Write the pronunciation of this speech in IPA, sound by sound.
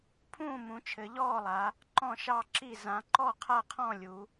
pʰ ũː˥˩ m ũ˩˧ t͡ʃʰ ɘ˩˧ ʎ ɔː˥˩ lˠ a˩˧ | ǃ ɔ̃˥˩ ʃ ɑ˥˩ ǁ i˥˩ z ã˩˧ ǃ ɔ˥˩ qʰ a˥˩ qʰ ɔ̃˥˩ lʲ u˩˧

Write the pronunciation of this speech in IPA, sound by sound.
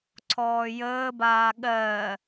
ǀʰ ɔː j əː b aː ɠ ɜ

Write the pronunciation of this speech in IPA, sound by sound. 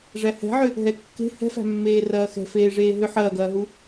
ʐ æ h ɛ̤ ʕ ʏ | ɦ ɛ kː e̤ h ɛ̤ f æ̤ mː eː r ɐː x ɛ̤ f eː ʐ eː ɦ ʏ ħ ɐː ɡ ɐː ɦ u

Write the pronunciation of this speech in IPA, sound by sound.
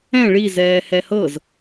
ɛ̃ ɭ i z ɛː h ɛ h ɤ z

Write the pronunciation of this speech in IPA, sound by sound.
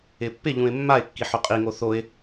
ɪ pː ɪ ʎ ũ ɪ̯ mː a ɪ̯ kː i ħ o qʼ i ŋ o θ o ɪ̯

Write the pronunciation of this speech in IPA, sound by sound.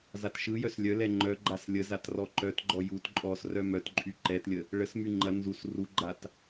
z a t ʃ ɯ j œ s lʲ œ l ɛ ŋ͡ǃ œ ɡ͡ǃ a s lʲ ə z a t r ɔ ǃ œ t ɡ͡ǃ ɔ j u t ǃʼ ɔ s r œ m œ t ǃʼ y ǃ ɛ t lʲ ə | ɭ ə s m y ŋ͡ǃ ɐ n z u s r u ɡ͡ǃ a t

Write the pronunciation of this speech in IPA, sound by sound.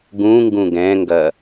ɡ ũ ŋ ɡ ũ ɡ ɛ̃ ŋ ɡ ɐ

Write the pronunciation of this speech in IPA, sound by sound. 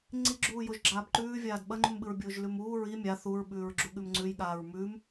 ŋ͡ǀ i ɡ͡ǁ uː j o ʒ ɡ͡ǁ aː b ǃ ʉː vʲ aː d ɓ ɐ ŋ͡ǃ ʉ m ɓ ɨ ɹ bʲ oː ʒ l ʉ m uː ɹ i mʲ a θ u ɹ ɓ ʉː ɹ ɡ͡ǁ u ɠ ʉ m ŋ͡ǀ ʉ j ɠ aː ɹ m ʉ m

